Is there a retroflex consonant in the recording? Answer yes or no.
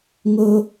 no